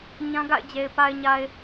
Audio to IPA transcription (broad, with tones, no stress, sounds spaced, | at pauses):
ɲ ã˦ ɡ a̰˦˨ ɪ̯ d͡ʑ e˨ ɪ̯ p a˨ ɪ̯ ɲ a˨ ɪ̯